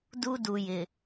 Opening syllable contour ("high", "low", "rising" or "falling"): high